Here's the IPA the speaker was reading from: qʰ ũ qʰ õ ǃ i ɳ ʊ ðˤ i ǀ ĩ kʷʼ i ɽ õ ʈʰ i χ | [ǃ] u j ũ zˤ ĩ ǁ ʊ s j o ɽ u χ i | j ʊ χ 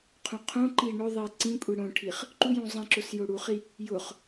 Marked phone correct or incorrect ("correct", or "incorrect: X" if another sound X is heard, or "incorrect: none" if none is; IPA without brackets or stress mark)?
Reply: correct